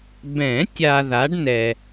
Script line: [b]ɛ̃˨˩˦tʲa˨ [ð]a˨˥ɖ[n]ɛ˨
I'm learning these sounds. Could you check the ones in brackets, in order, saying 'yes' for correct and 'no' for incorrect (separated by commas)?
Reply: yes, yes, yes